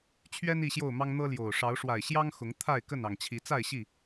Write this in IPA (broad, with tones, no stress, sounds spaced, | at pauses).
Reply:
t͡ɕʰ ɥ ɛ˦ n i˥˨ ɕ j o˥˨ ʊ̯ m ɑ˦ ŋ n̪ ɤ˦ l j o˨˩ ʊ̯ ʂ ɑ˨˦ ʊ̯ ʂ w a˨˩ ɪ̯ ɕ j ɑ˦ ŋ x ʊ˨˦ ŋ t̪ʰ a˥˨ ɪ̯ k ə˥˨ n ɑ˨˩ ŋ t͡ɕʰ i˨˦ t͡s a˥˨ ɪ̯ ɕ i˥˨